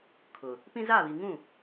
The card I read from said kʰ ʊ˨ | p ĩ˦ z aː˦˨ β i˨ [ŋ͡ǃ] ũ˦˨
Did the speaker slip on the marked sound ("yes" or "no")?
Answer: yes